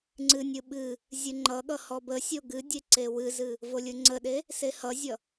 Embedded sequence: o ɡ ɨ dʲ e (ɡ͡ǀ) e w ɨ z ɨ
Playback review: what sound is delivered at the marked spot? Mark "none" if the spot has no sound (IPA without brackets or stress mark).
ǀ